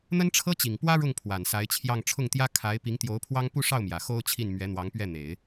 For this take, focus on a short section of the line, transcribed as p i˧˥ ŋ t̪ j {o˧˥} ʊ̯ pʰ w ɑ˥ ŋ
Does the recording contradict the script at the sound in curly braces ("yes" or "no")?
no